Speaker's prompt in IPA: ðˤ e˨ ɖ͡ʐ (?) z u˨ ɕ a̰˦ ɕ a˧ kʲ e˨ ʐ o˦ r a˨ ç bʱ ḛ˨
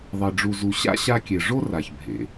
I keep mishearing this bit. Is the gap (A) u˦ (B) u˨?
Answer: B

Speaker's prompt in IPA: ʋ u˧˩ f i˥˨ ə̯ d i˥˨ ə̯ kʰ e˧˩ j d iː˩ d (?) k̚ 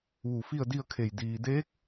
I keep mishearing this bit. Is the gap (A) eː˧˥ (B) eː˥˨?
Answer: A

